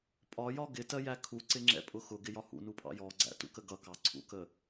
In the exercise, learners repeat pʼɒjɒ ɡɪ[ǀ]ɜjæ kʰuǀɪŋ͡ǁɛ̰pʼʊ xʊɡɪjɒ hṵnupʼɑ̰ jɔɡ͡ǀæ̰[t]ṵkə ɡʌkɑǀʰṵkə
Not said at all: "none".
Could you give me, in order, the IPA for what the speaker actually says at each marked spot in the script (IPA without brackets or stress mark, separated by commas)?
t, t